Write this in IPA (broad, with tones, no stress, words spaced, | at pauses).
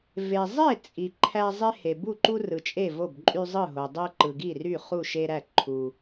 ve˨zˤe˥˨ t͡sʼi˨ǃʰæ˦ zˤe˦he˨ bu˥˨ǃu˦ rɯ˨t͡ʃʼe˥˨ vo˥˨bǃʼy˦zˤɯ˥˨ɦo˨ dˤe˦ǃɯ˨ɡi˥˨ry˥˨ χu˥˨ʃe˦ɾæ˥˨ ǃʰu˦